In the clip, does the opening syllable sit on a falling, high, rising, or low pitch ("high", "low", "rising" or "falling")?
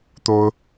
high